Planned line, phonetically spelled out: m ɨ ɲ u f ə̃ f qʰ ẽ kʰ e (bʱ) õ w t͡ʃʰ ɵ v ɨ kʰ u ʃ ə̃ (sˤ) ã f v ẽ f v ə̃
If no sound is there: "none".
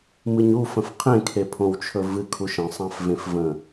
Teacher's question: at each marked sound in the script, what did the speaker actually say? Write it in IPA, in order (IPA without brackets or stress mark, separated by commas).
pʰ, sˤ